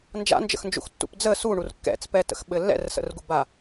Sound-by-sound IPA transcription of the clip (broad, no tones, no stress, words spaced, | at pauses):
nd͡ʒa̰nd͡ʒə̰xnd͡ʒṵxtːṵp d͡zə suɳur kːɛ̰t͡spɛtə̰xɓɘ lːɛ̰rsə̰rɡuba